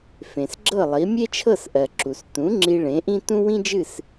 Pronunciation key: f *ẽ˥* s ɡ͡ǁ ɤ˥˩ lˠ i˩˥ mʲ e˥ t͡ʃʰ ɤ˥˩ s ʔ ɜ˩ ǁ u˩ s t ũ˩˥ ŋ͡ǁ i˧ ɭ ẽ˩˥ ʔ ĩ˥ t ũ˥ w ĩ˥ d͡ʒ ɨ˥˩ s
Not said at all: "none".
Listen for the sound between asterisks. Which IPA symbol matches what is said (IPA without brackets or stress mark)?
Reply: ẽ˩